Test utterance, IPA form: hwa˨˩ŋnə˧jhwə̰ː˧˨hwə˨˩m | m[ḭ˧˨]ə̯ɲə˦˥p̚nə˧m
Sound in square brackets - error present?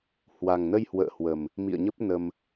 no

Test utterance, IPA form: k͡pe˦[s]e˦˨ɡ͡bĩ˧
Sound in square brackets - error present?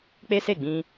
no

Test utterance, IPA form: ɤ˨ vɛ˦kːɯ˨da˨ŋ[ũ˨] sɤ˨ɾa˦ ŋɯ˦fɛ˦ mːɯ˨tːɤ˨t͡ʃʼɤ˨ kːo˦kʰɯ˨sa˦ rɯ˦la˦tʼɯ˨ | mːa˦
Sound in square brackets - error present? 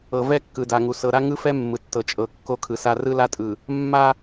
yes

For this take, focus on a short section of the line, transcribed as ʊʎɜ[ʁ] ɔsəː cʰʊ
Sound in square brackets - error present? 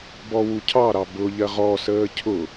no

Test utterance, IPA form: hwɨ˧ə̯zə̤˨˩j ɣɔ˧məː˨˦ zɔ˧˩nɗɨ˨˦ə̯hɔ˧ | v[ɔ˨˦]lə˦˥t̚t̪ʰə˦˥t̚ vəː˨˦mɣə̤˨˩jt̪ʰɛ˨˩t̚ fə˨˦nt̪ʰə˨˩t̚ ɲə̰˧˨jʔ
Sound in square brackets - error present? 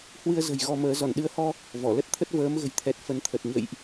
yes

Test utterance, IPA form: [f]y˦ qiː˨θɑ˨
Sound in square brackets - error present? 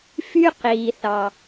no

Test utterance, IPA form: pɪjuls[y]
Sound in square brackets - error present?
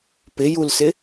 yes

